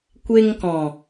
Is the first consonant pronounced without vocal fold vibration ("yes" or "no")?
yes